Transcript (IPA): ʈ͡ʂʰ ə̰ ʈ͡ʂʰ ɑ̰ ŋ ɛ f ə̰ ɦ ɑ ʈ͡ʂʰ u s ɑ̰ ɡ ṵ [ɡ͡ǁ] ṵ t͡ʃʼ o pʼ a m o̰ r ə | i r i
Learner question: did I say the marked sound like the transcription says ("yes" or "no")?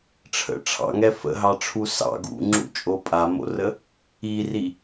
no